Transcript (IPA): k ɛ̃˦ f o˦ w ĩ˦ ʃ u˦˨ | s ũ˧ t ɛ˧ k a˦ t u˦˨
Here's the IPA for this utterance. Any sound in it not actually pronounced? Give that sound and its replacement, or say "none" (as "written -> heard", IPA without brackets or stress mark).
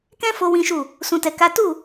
none